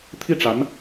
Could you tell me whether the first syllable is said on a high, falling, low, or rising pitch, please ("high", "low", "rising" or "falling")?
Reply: falling